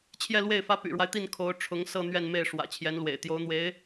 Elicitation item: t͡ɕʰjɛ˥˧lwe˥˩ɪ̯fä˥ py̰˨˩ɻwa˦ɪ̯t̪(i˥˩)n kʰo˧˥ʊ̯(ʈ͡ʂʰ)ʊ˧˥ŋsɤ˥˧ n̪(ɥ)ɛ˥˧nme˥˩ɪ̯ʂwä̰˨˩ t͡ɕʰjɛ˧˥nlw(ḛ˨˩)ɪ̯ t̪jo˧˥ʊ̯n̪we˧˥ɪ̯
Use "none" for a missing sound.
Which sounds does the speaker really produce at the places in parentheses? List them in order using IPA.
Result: i˥˩, ʈ͡ʂʰ, ɥ, ḛ˨˩

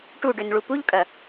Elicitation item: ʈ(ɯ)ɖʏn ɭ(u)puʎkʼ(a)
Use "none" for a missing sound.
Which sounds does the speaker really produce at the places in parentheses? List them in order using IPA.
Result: u, u, ɐ

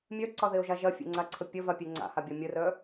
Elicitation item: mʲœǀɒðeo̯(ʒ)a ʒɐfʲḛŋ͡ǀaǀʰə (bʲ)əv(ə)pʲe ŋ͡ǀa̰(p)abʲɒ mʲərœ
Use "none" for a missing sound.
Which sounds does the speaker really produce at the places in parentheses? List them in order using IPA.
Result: ʒ, pʲ, a, h

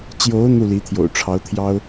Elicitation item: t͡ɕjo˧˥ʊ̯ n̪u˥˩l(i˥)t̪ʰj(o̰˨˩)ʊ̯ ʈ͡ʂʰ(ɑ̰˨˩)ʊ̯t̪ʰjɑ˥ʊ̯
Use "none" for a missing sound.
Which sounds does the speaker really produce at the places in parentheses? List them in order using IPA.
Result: i˧˥, o̰˨˩, ɑ˧˥

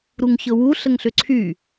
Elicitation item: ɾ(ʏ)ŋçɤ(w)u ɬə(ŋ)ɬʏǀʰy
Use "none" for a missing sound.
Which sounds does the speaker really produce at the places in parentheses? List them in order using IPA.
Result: u, w, ŋ

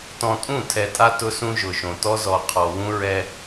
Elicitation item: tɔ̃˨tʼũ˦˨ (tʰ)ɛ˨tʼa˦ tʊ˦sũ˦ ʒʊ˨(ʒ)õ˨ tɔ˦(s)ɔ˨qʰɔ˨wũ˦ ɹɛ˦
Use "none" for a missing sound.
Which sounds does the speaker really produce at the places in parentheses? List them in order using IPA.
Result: tʰ, ʃ, z

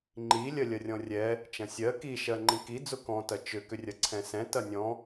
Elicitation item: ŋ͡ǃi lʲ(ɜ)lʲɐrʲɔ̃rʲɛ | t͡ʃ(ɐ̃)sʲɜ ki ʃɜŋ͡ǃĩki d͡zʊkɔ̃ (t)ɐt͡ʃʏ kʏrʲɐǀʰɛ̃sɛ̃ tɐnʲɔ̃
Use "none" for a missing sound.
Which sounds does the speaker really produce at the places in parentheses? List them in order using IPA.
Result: ɜ, ɐ̃, t

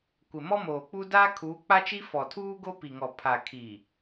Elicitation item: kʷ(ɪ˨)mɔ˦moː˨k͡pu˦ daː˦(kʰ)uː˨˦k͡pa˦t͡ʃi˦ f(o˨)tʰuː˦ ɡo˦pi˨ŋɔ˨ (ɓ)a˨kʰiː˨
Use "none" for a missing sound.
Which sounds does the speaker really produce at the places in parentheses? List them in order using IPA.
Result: ɪ˨, kʰ, ɔ˨, pʰ

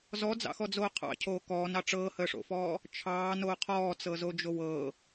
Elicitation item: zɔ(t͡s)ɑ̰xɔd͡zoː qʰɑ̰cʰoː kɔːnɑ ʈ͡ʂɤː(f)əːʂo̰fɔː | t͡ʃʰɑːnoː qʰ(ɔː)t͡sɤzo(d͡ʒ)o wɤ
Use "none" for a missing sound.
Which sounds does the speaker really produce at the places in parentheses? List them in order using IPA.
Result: d͡z, h, ɔː, d͡ʒ

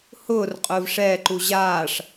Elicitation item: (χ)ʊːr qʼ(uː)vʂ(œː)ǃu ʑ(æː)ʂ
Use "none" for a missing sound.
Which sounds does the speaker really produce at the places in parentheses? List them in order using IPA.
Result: h, ʊː, ɛː, aː

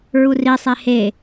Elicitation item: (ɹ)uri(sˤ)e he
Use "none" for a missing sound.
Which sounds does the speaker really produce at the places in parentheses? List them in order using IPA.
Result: ɹ, sˤ

